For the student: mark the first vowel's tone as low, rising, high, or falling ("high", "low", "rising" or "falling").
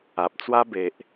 low